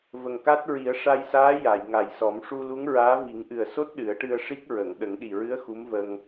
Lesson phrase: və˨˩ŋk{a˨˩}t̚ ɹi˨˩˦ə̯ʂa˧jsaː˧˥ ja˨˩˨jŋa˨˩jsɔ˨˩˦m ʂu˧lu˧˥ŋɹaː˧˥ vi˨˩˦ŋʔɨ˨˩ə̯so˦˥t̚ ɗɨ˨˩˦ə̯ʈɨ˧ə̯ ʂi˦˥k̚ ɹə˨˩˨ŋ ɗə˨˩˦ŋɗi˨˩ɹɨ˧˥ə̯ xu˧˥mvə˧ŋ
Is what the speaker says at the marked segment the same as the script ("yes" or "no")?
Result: no